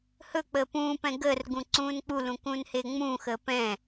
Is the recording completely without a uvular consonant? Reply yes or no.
yes